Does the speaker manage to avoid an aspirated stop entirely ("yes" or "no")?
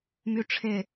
no